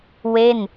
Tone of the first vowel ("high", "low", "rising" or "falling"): falling